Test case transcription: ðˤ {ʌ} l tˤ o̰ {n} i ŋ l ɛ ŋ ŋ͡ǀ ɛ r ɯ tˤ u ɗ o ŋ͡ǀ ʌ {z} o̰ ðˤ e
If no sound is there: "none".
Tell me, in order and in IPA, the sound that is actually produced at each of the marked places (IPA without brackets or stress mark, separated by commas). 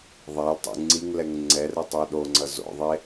a, ŋ͡ǀ, z